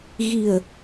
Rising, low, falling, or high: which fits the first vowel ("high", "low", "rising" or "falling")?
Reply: low